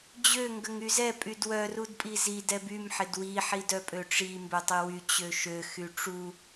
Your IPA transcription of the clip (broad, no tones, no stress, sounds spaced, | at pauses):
d͡ʑ ø ŋ ɡ ə ŋ y z ɛ pʼ y d w œ r u d pʼ i z i d ɛ b y m ħ ɪ d w i ħ i d œ pʼ ø ʈ͡ʂ i m b ø tˤ i w y t͡ɕ ø ʃ ø x y ʈ͡ʂ u